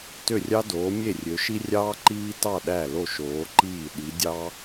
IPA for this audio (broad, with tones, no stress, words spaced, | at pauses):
tø˧˩rʲɑ˧doː˩˧ mʲe˧˩rʲø˩˧ʃi˧rʲɑː˧ ǃiː˧tɑ˧˩ ɗæ˧˩lo˧˩ʃoː˩˧ǃiː˧˩ ɗi˩˧dʲɑ˧